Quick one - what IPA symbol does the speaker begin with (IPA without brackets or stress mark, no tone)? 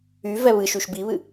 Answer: y